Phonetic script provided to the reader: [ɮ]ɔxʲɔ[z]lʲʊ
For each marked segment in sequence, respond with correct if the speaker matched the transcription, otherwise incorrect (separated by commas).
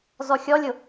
incorrect, incorrect